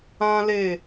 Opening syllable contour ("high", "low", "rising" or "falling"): high